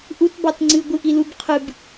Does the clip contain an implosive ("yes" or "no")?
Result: no